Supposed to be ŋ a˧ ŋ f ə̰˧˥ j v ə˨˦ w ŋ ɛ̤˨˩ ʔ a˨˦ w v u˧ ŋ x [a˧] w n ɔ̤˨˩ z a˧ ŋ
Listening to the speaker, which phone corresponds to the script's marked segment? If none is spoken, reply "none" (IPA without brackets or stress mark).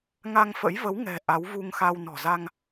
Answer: a˧